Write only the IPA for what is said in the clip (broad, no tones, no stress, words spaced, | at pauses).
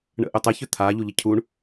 ɳə̰ʔʏtˤə çʏt̪ʰa ʎuʎəcʰuɳ